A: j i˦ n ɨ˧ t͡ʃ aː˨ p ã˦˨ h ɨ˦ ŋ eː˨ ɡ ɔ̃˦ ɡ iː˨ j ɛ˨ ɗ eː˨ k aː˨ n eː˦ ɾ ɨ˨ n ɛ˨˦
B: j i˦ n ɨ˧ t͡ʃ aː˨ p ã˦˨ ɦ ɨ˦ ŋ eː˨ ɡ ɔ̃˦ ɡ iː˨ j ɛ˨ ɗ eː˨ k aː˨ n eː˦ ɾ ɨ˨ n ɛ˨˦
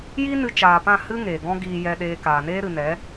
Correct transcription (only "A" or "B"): A